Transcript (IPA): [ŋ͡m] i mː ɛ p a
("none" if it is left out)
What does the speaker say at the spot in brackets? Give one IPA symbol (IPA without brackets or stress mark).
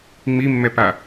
ŋ͡m